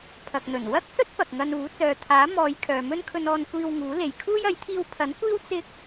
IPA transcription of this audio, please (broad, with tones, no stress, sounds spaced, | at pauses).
pʰ ɐ˨ k̚ n̪ ɵ˨˩ n w ɐ˥ k̚ s ɵ˥ t̚ p ɐ˨ k̚ ŋ ɐ˧ n uː˨˥ t͡s œː˨ t̪ʰ aː˨˥ m ɔː˨˧ j kʰ œː˨ m ɵ˥ n kʰ ɵ˧ n ɔː˧ n kʷ iː˧ w ŋ uː˨˥ l e˨ j kʰ uː˥ j ɐ˨˥ j t̪ʰ iː˧ w pʰ ɐ˨˥ n kʷ iː˥ w t͡s ɪ˥ k̚